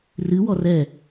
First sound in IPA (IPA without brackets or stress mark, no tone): r